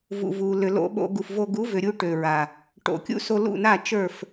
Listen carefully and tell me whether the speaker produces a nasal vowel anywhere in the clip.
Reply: no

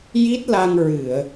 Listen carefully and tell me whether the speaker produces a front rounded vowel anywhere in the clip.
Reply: no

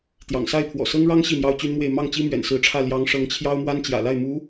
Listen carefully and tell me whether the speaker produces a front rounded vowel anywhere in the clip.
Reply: yes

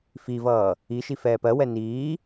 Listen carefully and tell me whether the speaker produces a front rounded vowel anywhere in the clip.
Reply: no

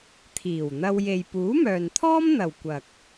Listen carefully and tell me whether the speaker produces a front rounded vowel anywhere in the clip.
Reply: yes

